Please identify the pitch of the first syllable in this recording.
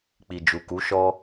low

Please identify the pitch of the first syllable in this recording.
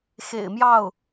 low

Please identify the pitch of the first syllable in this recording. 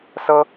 high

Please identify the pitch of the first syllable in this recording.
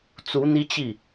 rising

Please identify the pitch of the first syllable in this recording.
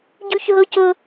high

